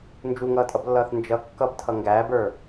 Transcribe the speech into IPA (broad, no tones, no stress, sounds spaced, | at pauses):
n d͡ʒ u ŋ ʌː tʼ ʌ b lː ʌː θ n d͡ʒ ʌ kː ʌ b tʰ ʌ ŋ ɡ æː b ə˞